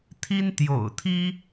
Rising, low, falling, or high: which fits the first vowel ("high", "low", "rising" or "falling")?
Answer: high